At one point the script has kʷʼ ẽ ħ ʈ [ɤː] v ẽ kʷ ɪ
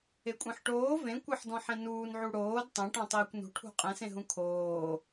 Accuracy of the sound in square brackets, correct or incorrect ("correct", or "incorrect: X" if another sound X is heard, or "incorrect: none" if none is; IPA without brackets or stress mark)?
incorrect: oː